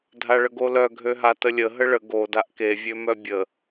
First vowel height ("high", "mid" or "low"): low